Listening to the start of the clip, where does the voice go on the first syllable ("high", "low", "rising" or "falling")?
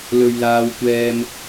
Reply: high